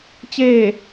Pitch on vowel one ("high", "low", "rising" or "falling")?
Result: falling